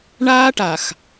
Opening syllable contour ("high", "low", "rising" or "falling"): high